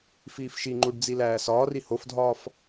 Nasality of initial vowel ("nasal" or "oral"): oral